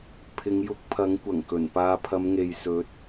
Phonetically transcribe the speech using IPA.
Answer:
pʰɪ˨˧ŋjʊ˧k̚pʰɐ˨˥ŋ kʷɐ˨˩ŋkɵ˨˩npaː˧ pʰɐ˨˧mŋe˨jsɵ˨˥t̚

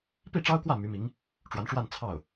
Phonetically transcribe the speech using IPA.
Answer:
pi˥˩ʈ͡ʂɑ˥ʊ̯kwä˥˩ my˧˥mi˧˥ŋ | ʈ͡ʂwa˧˥nʈ͡ʂwa˥˧n t͡sʰɑ˥˩ʊ̯

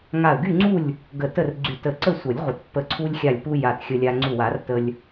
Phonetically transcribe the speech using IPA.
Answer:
ŋa˧˩ə̯ɡy˥˨ŋ͡ǀu˥˨lʲ | ɡə˧˩tə˥˨r ɡ͡ǀy˧˩tə˧˩ ǀə˥˨ sʷə˨˩˦lʲʁʷə˨˩˦tpːə˧˩ ǀʰu˧lʲxʲa˧˩lʲpu˧ ja˧˩txʲə˧lʲa˧ ŋ͡ǀu˧˩wa˨˩˦rtə˧lʲ

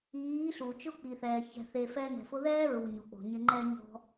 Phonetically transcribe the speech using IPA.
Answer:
iː˨˦ɬu˨ t͡ʃʊ˦k͡pi˨θɛː˨ çɛ̤˧θe˧ fɛ˧ nɛ̤˨fʊ˧ðɛː˦ ɹu˨ɲo˨k͡po̤˨ɲɪ˧ ŋ͡ǃɛ˦ɲɔ̤˦

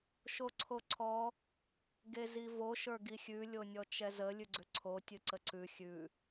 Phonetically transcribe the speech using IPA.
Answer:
ʃoǀʰoǀʰɔ | ɡezivo ʃə˞ɡixʲʉ lʲonʲɔt͡ʃɛzə lʲʉɡ͡ǀʏǀʰo tʲɨǀəǀʉ xʲʉ

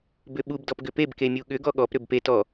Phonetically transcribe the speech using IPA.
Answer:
bʏɓub dɔpɡʏpeb kemʲuɠʏ ɡɔɠɔp ɾʏbpet ɔ

